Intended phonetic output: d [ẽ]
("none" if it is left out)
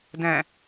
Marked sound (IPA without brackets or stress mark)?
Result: ɛ̃